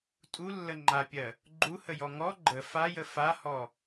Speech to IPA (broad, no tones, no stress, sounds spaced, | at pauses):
tʼ u lː ə ŋ͡ǃ a pʲ ɜ | ɡ͡ǃ u h ə j ɔ ŋ ɔ ɡ͡ǃ ə f a j ə f a h ɔ